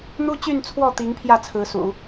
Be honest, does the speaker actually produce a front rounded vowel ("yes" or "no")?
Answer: yes